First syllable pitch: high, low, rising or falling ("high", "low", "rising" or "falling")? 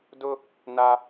high